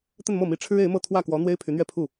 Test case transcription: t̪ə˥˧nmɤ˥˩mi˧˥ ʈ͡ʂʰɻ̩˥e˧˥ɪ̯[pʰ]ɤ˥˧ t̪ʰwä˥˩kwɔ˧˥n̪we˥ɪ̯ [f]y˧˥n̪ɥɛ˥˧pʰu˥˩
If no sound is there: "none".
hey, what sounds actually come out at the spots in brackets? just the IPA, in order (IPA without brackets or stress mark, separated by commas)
m, pʰ